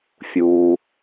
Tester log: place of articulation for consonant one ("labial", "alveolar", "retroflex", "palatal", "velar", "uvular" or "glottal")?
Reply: labial